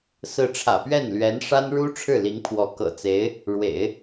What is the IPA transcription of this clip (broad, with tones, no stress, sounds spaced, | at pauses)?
s ɹ̩˥˩ ʈ͡ʂʰ ä̰˨˩ p ɥ ɛ˥˩ n l ɥ ɛ˧˥ n ʂ a˥ n ɻ u˥ ʈ͡ʂʰ ɻ̩˥˩ l i˧˥ ŋ pʰ w ɔ˧˥ k ɤ̰˨˩ t͡s e˧˥ ɪ̯ | ɻ w ḛ˨˩˦ ɪ̯